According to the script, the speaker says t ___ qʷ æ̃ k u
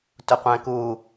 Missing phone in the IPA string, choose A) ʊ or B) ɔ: A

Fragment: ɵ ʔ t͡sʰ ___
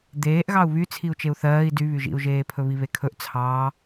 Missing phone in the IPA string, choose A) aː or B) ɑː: B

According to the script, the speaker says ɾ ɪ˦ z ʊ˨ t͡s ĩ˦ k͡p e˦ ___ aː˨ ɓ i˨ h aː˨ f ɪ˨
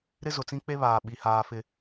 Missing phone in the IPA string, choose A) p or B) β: B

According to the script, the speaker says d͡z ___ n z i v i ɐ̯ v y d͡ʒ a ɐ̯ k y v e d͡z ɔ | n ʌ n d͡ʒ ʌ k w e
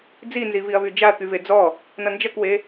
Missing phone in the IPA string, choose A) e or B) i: B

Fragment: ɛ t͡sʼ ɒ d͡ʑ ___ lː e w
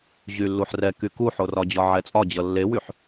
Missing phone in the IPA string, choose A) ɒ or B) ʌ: B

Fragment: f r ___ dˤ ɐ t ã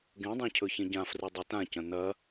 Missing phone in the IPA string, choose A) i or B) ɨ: B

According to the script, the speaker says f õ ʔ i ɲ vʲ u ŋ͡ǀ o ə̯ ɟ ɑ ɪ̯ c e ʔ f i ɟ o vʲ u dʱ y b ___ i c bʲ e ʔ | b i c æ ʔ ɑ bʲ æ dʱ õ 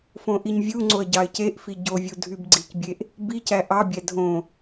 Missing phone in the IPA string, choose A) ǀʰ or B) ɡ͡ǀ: B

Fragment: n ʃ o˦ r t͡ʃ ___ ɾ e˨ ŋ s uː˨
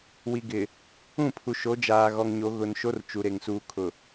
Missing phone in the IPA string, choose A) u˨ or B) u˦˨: A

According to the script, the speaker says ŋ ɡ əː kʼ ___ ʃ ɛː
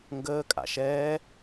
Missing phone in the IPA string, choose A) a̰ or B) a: A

